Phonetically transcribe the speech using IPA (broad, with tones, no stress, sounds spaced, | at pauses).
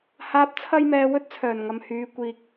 h aː˨˥ p̚ t͡sʰ ɐ˧ j m ɛː˨ w ɵ˧ t̚ t͡sʰ œː˨˩ n ŋ ɐ˨ m h yː˨˧ kʷ iː˨ k̚